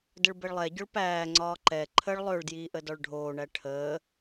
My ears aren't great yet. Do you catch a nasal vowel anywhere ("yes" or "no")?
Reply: no